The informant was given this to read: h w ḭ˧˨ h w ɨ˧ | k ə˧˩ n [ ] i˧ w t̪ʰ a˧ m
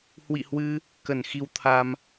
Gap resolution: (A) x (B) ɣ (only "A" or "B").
A